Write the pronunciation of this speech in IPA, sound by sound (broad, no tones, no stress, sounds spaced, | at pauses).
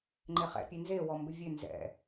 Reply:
ŋ͡ǃ e χ ɛ̰ pʲ e n z e w ɔ m b ɪ vʲ ø n z ɛ̰